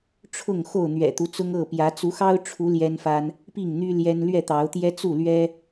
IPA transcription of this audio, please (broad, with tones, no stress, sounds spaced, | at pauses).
ʈ͡ʂʰ ʊ˥˨ ŋ x o˥˨ ʊ̯ n̪ ɥ ɛ̰˨˩ t̪ u˦ t͡s ʊ˦ ŋ ɤ˥˨ p j ä˨˦ t͡s u˨˦ x ɑ˦ ʊ̯ ʈ͡ʂʰ u˨˦ l j ɛ˦ n f a˦ n | p i˥˨ ŋ n̪ y˦ l j ɛ˦ n l ɥ ɛ˥˨ t̪ ɑ˨˦ ʊ̯ t̪ j ɛ˦ t͡s u˥˨ l ɥ ɛ˦